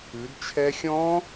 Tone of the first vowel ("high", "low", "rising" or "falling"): rising